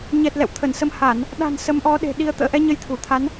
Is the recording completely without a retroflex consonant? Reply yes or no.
yes